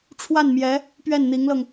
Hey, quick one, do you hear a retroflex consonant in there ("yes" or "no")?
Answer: yes